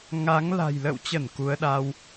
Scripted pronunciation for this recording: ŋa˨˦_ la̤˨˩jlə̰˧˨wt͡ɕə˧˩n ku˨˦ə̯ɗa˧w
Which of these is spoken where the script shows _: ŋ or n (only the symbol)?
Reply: ŋ